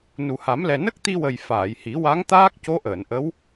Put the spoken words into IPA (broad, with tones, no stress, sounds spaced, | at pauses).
n u˨˩ h a˨˩˦ m l ɛ˨˩ n ə˦˥ k̚ t̪ i˧ w ə˨˩ j f aː˨˩˨ j h i˨˩˦ w a˧˥ ŋ t̪ aː˦˥ k̚ c o˧˥ ʔ əː˨˩˨ n ʔ ə˧˥ w